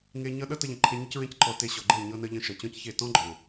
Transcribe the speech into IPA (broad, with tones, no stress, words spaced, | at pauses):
ŋe˧ ɲʌ˧ ɗʌ˦tə˧ʎə̃˨ ǃʰe˧ɲə˦cɹẽ˦cǃɔ˧ te˧ ɕɔ˨ɡ͡ǃe˦˨ ɲɤ˧nə˧ʎə̃˧ ʃʌ˨t͡ɕɔ̃˦cçe˦˨ tɔ̃˦ɡ͡ǃɔ̃˨